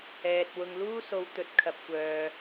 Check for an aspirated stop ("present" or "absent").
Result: present